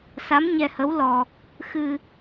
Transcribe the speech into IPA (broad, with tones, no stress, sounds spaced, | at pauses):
s a˧˥ m ɲ ɛ˧ h ə˧˥ w l ɔ˧ | x ɨ˧